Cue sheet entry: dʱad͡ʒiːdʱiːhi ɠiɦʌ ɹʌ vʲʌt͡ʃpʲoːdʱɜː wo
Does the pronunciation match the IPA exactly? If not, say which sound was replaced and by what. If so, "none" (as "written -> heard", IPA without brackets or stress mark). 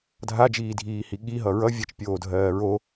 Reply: w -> ɹ